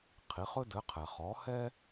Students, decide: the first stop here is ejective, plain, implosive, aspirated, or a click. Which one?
aspirated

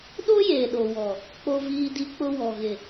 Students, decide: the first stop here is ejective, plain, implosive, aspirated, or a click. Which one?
implosive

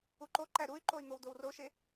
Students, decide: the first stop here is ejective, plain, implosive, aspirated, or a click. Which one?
click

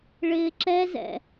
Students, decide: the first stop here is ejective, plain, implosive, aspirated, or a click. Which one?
click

